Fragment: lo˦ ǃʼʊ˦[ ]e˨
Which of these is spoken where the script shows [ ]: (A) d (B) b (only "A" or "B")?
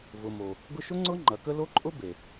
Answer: B